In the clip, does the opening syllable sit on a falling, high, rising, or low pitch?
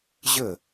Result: falling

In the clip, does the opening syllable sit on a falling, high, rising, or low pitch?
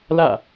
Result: falling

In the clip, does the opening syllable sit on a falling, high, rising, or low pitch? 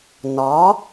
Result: rising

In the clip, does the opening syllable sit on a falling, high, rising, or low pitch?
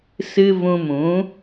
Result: high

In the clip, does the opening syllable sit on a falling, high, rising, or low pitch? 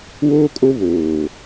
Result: high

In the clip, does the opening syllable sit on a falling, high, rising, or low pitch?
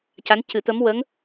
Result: rising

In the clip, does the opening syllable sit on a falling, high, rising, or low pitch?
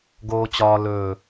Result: low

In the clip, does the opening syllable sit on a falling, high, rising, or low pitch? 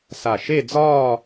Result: low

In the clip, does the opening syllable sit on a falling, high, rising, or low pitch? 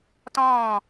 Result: falling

